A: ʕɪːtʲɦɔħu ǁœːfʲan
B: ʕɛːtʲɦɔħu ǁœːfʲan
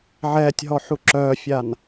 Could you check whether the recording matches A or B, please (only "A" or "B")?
B